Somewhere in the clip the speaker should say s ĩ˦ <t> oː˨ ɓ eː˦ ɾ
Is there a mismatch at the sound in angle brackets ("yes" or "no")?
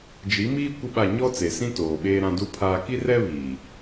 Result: no